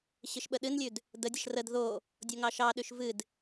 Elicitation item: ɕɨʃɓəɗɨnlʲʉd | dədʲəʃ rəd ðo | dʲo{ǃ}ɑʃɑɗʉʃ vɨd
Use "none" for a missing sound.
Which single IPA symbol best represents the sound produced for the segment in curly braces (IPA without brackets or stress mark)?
ŋ